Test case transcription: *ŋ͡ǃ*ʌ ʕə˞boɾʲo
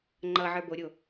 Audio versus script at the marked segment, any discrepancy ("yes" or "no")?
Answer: no